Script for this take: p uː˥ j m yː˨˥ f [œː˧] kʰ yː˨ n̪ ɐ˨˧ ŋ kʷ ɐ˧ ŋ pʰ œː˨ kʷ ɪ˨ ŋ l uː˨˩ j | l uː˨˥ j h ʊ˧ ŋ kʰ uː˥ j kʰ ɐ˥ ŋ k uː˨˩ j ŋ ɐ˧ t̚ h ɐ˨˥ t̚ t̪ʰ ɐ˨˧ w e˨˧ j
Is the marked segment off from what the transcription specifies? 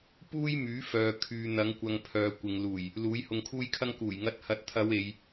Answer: yes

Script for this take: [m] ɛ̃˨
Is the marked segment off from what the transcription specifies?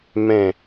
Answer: no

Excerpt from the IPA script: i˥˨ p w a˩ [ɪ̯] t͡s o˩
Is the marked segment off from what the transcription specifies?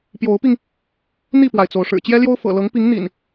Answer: no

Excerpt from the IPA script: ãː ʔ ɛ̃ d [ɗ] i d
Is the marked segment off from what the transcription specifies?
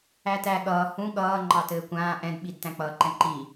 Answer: yes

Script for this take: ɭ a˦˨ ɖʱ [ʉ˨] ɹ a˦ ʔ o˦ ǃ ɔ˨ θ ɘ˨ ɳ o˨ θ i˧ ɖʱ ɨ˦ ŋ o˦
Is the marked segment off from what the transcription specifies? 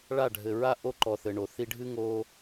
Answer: yes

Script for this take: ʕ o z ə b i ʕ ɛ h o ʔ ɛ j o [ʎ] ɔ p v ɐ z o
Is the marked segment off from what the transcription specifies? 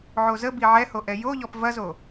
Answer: no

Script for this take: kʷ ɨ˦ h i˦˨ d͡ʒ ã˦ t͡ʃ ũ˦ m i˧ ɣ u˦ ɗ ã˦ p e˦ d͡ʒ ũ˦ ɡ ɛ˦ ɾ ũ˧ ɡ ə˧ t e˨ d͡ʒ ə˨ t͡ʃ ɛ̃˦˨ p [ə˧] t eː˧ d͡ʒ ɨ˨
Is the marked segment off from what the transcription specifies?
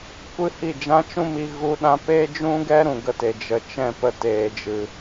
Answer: no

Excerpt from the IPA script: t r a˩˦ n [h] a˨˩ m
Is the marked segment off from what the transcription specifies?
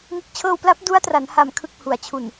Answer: no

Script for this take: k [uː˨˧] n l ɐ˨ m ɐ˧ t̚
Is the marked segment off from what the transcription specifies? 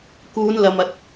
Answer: no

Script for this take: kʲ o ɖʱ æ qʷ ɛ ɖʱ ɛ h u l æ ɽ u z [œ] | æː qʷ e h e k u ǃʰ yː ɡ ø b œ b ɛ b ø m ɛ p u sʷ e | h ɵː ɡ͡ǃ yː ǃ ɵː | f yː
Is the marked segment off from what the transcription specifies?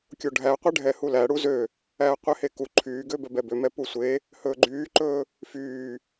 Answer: yes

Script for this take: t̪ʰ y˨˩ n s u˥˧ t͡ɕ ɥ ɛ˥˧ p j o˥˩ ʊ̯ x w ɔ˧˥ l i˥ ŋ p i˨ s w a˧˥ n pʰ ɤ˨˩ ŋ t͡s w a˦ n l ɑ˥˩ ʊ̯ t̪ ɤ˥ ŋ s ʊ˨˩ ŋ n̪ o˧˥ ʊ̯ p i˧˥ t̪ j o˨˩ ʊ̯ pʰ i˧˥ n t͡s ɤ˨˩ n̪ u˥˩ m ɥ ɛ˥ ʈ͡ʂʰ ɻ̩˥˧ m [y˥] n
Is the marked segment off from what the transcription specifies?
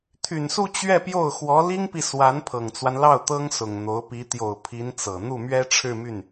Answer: yes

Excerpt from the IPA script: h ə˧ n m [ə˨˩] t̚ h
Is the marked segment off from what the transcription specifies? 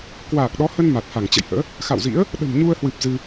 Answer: yes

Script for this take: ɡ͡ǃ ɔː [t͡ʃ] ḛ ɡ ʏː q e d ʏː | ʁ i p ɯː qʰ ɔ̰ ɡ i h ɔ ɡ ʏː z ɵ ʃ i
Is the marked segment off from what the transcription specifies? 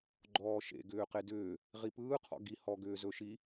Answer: yes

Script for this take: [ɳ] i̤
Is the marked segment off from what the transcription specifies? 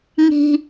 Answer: yes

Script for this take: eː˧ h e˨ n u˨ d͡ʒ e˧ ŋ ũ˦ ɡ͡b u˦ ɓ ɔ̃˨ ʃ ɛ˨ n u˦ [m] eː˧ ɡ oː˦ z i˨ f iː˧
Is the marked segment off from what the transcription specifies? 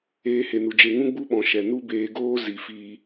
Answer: yes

